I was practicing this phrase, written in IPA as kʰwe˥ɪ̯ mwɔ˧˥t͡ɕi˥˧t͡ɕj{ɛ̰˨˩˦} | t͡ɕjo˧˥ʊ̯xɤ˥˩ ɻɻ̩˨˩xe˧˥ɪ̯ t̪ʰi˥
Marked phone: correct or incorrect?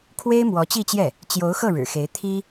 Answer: incorrect